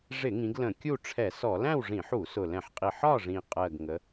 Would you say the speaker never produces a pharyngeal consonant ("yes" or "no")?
no